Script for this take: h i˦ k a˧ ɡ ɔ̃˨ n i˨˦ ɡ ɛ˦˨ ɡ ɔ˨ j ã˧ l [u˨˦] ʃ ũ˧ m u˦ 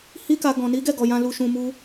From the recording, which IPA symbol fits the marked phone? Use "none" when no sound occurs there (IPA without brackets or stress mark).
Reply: u˧